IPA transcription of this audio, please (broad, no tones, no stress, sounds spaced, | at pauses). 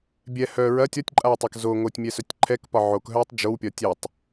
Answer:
bʲ ɛ h œ ɹ ɐ tʲ ɒ tʲ ǃʼ a w tˤ ɐ k z o ŋ o tʲ mʲ ɛ s œ tʲ ǃʰ ɛ k p ɒ ʕ o k ɦ œː tˤ d͡ʒ o w pʲ ɒ tʲ ɛ tˤ